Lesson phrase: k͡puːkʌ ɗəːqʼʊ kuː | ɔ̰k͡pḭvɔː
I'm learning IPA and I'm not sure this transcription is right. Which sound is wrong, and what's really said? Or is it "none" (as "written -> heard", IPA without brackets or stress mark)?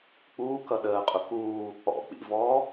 none